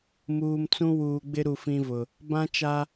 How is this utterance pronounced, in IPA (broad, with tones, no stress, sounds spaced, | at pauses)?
m uː˨ m t͡s ũ˦ w uː˨ ɡ͡b ɪ˦ ɾ u˨ f ĩ˦ v ʊ˨ | b ã˦ t͡ʃ a˦